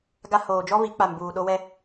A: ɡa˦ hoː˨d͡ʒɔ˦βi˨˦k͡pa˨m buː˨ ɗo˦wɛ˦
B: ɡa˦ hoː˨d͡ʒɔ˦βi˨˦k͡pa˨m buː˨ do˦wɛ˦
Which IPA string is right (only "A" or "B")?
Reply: A